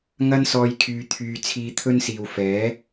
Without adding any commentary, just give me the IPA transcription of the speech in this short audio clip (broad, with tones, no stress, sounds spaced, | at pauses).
ŋ ɐ˥ n s ɔː˧ j kʰ yː˧ t̪ʰ yː˧ t͡sʰ iː˧ t̪ʰ ɵ˥ n s iː˨ w f ɛː˨˥